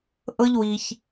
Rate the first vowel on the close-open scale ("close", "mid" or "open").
mid